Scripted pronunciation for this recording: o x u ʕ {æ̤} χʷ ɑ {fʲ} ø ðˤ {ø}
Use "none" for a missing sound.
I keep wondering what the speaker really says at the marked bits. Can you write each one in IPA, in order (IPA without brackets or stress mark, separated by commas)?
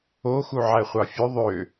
æ, fʲ, ø